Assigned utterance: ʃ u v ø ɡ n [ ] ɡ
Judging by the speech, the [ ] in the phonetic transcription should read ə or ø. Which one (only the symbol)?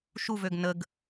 ə